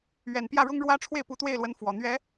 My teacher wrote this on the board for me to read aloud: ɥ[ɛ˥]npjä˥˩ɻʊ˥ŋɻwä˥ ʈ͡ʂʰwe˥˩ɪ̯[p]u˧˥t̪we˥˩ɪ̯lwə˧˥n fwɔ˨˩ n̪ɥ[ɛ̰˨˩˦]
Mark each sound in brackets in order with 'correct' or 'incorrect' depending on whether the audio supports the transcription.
incorrect, correct, incorrect

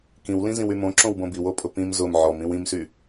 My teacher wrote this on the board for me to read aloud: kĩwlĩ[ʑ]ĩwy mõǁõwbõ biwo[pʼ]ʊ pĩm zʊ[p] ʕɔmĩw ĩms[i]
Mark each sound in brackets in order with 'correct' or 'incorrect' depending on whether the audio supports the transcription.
incorrect, correct, incorrect, incorrect

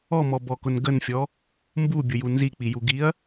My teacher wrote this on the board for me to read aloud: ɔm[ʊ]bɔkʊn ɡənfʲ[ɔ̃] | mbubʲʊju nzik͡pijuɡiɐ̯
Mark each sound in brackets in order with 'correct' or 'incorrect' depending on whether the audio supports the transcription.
incorrect, incorrect

